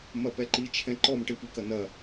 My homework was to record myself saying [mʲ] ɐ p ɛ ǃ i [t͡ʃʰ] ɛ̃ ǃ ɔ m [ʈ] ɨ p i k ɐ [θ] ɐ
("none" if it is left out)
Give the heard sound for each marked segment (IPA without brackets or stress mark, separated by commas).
m, t͡ʃʰ, ʈ, n